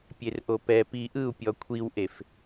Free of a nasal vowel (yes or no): yes